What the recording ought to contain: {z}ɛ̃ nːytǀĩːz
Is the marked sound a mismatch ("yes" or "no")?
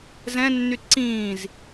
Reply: no